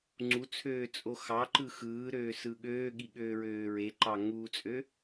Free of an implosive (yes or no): no